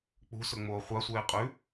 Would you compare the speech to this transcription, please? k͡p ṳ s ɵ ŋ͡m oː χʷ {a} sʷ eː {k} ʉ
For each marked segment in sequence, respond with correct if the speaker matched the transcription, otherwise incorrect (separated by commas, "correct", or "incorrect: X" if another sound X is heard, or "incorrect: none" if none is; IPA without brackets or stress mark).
correct, incorrect: qʼ